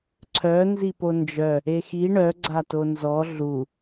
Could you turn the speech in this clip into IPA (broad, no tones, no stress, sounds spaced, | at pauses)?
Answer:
ǀʰ œ n z i p o n d͡ʒ œ | e x i ɳ œ ɡ͡ǀ a t o n z ɔ ɮ u